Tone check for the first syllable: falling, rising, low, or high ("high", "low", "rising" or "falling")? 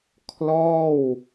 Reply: falling